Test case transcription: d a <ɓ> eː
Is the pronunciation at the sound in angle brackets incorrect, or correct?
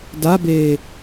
incorrect